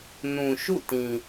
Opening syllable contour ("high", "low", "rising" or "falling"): low